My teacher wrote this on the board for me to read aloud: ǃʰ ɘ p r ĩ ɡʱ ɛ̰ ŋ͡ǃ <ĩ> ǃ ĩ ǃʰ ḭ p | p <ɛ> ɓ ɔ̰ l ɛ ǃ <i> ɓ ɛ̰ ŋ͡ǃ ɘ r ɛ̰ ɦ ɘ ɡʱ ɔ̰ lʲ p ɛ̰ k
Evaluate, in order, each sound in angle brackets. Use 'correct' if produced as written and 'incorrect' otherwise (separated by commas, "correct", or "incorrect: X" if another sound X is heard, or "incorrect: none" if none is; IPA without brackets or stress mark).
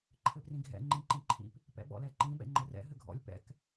correct, incorrect: ɛ̰, incorrect: ĩ